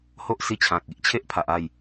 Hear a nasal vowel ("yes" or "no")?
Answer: yes